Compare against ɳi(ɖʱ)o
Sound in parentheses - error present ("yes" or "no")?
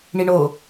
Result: yes